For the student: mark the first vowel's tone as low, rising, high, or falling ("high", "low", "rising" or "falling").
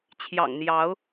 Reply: low